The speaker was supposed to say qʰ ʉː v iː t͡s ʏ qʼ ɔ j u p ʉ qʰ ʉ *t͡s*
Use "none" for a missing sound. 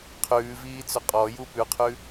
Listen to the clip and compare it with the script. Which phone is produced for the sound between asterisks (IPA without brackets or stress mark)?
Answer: none